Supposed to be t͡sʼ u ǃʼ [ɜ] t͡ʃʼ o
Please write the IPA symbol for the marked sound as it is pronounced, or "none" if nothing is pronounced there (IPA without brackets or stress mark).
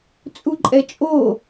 ɛ